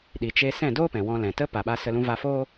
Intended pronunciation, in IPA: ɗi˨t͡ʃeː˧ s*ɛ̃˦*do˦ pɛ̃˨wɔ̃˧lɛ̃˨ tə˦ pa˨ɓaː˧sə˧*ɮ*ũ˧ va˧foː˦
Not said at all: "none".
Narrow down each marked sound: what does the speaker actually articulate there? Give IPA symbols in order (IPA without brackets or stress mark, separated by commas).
ɛ̃˦˨, l